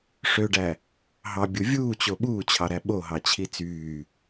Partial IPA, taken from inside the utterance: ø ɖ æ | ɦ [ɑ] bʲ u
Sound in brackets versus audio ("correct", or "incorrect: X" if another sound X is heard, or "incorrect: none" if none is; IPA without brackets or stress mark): correct